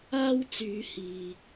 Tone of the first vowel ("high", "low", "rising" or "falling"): high